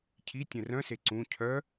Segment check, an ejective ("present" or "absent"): absent